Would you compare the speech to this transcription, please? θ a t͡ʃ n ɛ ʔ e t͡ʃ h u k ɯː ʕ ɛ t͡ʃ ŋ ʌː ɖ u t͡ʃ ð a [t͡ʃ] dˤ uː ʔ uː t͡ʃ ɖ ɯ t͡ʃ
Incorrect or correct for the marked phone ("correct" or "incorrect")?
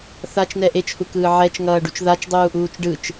correct